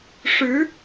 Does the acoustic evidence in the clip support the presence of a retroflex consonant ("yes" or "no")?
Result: yes